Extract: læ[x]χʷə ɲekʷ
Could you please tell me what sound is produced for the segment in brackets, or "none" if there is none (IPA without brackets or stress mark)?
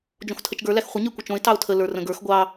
x